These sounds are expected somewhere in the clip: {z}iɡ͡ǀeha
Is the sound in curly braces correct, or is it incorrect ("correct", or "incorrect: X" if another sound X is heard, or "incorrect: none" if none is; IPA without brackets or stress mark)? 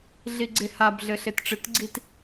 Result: incorrect: ɮ